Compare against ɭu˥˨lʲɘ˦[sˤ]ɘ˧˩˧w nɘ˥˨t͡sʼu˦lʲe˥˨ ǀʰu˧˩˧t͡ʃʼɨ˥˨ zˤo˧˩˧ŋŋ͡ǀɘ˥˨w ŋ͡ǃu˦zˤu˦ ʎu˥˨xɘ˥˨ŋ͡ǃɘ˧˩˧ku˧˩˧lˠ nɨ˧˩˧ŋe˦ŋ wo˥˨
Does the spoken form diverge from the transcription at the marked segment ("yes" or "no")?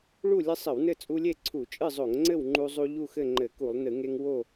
no